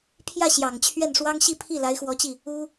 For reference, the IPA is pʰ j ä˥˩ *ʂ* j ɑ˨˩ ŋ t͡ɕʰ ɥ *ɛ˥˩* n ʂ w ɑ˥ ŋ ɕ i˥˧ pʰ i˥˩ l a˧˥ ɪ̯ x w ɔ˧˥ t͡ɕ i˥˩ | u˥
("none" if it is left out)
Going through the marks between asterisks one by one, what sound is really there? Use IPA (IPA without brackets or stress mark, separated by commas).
ɕ, ɛ˥˩